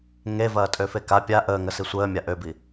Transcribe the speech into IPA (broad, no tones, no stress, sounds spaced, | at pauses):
ŋ e v ɐː tʼ ø f e k a pʲ a ʔ əː ŋ ə s i sʷ əː mʲ a ʔ ø b i